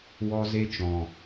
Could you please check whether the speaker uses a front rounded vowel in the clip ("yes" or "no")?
no